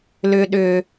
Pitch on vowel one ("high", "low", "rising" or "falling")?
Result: high